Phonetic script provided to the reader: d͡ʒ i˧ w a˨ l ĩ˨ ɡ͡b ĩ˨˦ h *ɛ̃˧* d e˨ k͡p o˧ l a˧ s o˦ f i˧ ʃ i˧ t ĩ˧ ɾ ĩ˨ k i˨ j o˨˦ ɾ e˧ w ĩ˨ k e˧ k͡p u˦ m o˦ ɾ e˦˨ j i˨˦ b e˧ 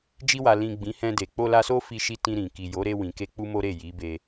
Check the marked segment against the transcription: correct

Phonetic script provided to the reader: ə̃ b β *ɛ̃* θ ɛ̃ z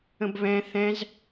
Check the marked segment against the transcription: correct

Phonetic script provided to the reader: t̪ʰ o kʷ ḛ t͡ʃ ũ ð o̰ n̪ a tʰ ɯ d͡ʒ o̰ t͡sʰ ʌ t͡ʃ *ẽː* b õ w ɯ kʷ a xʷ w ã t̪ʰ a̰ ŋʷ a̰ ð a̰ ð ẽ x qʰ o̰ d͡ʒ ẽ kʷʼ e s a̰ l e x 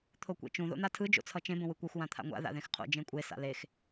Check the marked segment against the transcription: incorrect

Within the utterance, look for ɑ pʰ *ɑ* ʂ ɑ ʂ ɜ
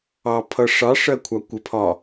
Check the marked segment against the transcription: incorrect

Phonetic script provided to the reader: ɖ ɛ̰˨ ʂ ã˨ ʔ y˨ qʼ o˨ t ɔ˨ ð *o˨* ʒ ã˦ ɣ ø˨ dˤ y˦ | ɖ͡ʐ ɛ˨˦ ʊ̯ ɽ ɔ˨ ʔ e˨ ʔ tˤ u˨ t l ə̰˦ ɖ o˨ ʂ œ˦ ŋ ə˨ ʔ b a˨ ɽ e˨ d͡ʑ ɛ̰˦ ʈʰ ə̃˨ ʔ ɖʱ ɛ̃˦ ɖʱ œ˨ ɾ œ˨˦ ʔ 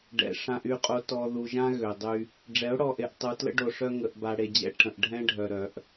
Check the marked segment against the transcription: incorrect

